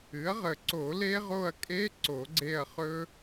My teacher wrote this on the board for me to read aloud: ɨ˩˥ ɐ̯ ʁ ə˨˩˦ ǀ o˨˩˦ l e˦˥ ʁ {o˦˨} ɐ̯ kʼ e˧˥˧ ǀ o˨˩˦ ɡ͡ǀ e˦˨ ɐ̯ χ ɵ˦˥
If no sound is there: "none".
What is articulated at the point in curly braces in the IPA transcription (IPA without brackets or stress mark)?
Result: o˦˨